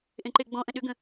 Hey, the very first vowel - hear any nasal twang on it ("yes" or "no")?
yes